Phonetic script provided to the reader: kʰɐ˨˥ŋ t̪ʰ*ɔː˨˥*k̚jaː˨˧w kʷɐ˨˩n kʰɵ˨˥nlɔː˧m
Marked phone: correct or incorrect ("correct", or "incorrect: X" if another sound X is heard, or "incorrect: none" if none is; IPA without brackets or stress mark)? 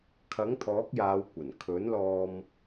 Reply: correct